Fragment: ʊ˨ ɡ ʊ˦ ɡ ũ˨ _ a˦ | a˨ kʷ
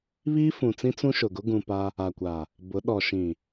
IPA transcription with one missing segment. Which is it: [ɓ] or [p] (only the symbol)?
p